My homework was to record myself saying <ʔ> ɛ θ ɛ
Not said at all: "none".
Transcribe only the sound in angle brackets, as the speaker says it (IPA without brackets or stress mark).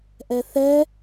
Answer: ʔ